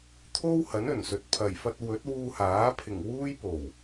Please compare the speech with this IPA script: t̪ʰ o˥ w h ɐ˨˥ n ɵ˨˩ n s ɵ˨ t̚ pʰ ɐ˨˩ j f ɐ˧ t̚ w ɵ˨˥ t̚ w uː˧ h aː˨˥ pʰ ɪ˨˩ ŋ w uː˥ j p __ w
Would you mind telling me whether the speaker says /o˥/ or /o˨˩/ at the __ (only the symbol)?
o˨˩